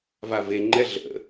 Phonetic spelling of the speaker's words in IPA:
vaveŋ͡ǃɛ ɮə̰

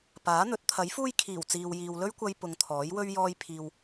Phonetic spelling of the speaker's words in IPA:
paː˨˥n̪ɵ˨˥t̚ t̪ʰɐ˨˥jfuː˥j kʰiː˨˩w t͡siː˨w jiː˨w lɵ˥ɥkʷɐ˧j pʊ˨˧ŋ t̪ʰɔː˨˥jwɵ˥ɥ jɔː˥j pʰiː˨w

